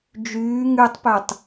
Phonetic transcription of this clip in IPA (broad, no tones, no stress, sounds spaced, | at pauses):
d͡ʒ yː ŋ y tˤ p ø tˤ